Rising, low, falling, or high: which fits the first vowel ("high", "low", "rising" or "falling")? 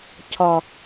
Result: low